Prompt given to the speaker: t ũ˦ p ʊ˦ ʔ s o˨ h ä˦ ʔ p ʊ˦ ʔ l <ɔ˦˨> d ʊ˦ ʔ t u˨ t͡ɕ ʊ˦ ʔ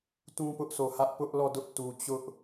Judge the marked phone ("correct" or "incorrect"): correct